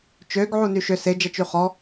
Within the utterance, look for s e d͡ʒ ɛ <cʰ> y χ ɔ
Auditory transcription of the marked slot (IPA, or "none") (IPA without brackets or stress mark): t͡ʃ